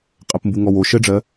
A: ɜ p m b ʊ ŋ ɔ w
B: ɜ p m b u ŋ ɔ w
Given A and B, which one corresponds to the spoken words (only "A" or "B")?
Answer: B